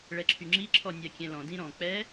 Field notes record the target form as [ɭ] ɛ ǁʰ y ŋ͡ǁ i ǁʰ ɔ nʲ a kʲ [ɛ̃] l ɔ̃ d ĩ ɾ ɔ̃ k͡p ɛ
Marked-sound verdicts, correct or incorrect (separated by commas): correct, correct